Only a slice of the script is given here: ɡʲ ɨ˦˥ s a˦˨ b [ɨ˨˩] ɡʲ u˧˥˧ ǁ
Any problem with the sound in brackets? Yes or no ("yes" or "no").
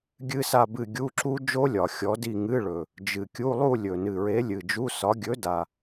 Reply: yes